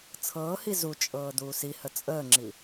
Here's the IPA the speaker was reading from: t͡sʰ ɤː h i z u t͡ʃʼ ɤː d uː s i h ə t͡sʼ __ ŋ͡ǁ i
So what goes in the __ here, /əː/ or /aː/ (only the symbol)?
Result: əː